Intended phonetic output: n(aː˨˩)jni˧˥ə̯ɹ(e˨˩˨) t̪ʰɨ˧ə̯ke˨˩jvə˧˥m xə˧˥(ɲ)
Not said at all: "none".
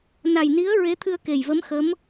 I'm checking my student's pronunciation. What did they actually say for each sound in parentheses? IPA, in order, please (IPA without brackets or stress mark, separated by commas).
a˨˩, e˧˥, m